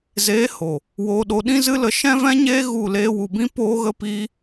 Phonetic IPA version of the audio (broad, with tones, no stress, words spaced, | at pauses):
zeː˨˦ ho˨ | woː˧ɗo˧ ɗĩ˦zɨ˦lə˧ ʃɛ̃˦vɛ̃˦ɲeː˦ ɣu˦˨ leː˧wu˨bĩ˦ poː˦ɣə˦piː˦